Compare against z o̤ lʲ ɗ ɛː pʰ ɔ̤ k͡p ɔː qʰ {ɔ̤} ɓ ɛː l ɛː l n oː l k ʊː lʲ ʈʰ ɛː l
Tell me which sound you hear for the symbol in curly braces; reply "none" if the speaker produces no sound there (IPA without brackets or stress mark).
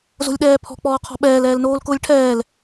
ɔ̤